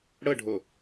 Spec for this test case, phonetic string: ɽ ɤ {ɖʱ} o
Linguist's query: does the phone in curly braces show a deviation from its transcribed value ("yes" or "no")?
no